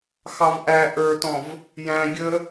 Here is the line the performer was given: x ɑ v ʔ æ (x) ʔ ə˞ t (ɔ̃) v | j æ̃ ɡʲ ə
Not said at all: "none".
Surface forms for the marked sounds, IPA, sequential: none, ɔ̃

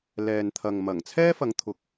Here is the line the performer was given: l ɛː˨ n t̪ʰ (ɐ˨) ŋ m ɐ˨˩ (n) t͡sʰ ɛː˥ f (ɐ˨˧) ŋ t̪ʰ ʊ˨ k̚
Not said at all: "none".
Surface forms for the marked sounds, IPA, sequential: ɐ˨, ŋ, ɐ˨˧

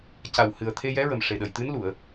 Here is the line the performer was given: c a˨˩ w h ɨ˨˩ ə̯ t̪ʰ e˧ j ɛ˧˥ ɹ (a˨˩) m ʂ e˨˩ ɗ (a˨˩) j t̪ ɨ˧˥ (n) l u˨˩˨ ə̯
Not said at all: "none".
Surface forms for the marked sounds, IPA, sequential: ə˨˩, ə˨˩, n

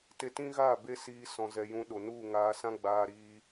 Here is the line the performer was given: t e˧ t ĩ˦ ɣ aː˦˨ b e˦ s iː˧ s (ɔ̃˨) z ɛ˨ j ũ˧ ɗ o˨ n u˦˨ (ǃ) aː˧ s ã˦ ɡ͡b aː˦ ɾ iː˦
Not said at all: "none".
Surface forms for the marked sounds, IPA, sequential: ɔ̃˨, ŋ

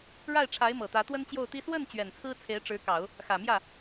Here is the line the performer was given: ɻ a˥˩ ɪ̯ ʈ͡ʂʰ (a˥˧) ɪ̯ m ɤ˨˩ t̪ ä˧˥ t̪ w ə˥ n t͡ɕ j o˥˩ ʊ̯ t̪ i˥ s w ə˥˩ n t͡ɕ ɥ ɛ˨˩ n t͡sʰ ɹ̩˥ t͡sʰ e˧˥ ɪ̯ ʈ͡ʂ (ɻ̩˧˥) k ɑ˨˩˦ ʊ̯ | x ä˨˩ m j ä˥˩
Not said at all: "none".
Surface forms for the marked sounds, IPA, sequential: a˧˥, ɻ̩˧˥

